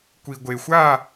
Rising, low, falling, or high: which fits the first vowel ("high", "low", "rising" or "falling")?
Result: low